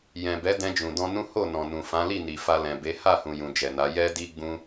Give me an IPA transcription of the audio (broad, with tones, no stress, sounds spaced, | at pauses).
j ɛ̃˨ b ɛ˨˦ d ɛ̃˧ d͡ʒ ũ˨ d ɔ̃˧ n ũ˦ h o˦˨ n ɔ̃˨ n ũ˨ f ã˨˦ l i˦˨ n i˨ f a˧ l ɛ̃˨ b e˨˦ h a˦˨ h ũ˨ j ũ˨ d͡ʒ ɛ˨ n a˨˦ j ɛ˦ d i˦ ɡ͡b ũ˦